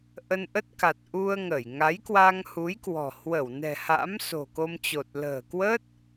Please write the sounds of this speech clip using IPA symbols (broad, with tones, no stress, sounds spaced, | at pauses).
ʔ ə˧ n ʔ ə˦˥ t̚ k a˨˩ t̚ ʔ u˧ ə̯ ŋ ə˧˩ j ŋ a˨˦ j k w a˧ ŋ h u˨˦ j k w ɔ̤˨˩ h w ə˧˩ w n ɛ̤˨˩ h a̰˧˥ m s o̤˨˩ k o˧ m t͡ɕ o˨˩ t̚ l ə̤ː˨˩ k w ə˦˥ t̚